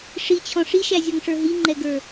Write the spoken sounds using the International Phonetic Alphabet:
ʂit͡ɕʰɔ̃ ʂiʃæzʲɔŋʂə˞ ɦiŋ͡ǃɛɡə˞

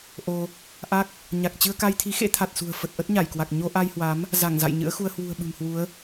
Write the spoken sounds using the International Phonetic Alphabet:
ʔo˧ | ʔa˦˥k̚ | ɲa˨˩k̚ t͡ɕɨ˧ə̯ka˧jt̪ʰi˨˦ xḛ˧˥t̪ʰa˨˩t̚sṳ˨˩ə̯ fə˨˩t̚ʔə˦˥t̚ɲa˧˩jkwa˨˩k̚ ɲo˧ʔa˧jhwa˨˦m | za˧˩ŋ za̰˧˨jɲɨ̰˧˥ə̯xu˧ə̯ hwṳ˨˩ə̯ɓɨ̤˨˩mhwu˨˦ə̯

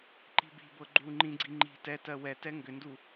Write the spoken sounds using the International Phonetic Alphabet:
ǃi̤bi̤bɤ ɡ͡ǃu ŋ͡ǃĩɡ͡ǀi ŋ͡ǃi̤ tɛ tɜwɛtɛ ŋɡʏndu

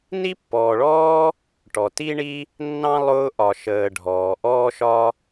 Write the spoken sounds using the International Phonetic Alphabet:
ni˥pːɔː˨ɭɔː˥ | ʈɔ˩ti˥ɳi˥ | nːɑ̃˥lˠʊː˦ ʔɒ˨ʃəː˨ɖʱɔː˩ ʔɔː˥ʃɒ˥

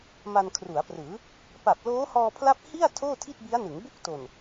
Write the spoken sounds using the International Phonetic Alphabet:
ma˧nkʰru˩˦a̯prɯː˩˦ | pa˨˩p̚loː˦˥hɔː˧pʰla˦˥p̚ hi˥˩a̯ tʰoː˥˩tʰi˥˩t̚bi˦˥a̯nɯ˩˦ŋ bu˥˩k̚to˨˩n

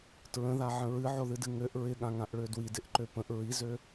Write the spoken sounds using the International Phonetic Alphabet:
tɹə̃ðaʕə̃ ɹɨʕoðɨdɨ ŋøʔ ɹɪɠãŋãʔɭø dwidɪʔǃø pə̃ʔ ɹizø

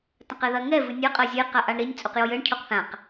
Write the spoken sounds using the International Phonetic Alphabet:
tɐ̃qɛðɐ ŋɛ vɨnʲɐ qʼɐzʲe qaʔaɳɾinʲ t͡sʼuqjojɘɳ cʰoqθãq

